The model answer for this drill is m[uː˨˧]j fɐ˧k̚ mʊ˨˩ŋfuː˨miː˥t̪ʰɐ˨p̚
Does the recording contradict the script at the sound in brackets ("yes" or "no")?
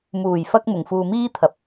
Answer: yes